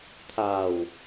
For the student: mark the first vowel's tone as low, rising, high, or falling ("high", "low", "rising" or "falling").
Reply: low